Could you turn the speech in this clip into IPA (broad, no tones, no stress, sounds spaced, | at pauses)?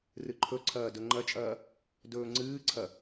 r ɨ ǃʰ ɵ ǀʰ ɐː d ɵ ŋ͡ǃ ɐ t͡ʃʼ ɐː | d ɵː ŋ͡ǀ ɨː ǀʰ ɐ